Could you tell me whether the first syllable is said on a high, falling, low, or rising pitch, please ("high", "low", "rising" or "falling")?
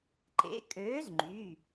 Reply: rising